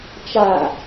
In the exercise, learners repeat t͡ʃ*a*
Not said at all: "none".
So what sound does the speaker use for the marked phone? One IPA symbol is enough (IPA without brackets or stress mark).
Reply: a